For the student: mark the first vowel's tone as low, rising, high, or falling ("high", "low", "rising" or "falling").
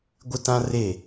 high